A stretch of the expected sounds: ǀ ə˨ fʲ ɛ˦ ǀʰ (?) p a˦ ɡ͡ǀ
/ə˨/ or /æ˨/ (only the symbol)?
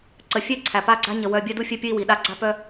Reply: æ˨